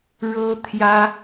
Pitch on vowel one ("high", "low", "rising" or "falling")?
high